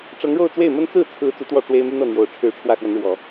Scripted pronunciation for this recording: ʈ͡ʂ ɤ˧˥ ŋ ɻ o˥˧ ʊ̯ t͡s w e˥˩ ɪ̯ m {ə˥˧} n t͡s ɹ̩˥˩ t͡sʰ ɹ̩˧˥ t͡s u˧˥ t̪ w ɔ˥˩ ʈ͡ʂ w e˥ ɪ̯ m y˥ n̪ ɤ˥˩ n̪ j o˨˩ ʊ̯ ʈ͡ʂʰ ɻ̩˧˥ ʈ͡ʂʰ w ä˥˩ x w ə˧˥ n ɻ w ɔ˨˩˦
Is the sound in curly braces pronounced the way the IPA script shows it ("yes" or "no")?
no